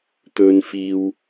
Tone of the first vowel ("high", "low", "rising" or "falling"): high